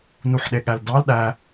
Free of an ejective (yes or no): yes